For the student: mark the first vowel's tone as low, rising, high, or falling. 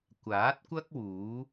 rising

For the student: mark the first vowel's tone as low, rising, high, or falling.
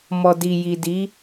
low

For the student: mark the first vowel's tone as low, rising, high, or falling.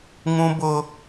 high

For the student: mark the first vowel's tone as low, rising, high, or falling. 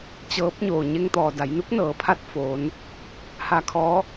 rising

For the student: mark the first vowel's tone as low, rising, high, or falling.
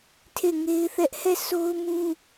falling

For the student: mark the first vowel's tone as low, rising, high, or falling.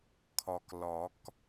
low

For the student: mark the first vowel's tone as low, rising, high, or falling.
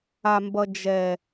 low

